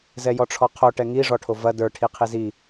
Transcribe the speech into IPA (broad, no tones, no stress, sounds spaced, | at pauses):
z ɛ j ɔ ʈ͡ʂʰ ɔ qʰ o ʈ ɛ ŋ i ʐ ɔ ʈʰ o v ɐ d ə˞ ʈʰ i qʰ i z i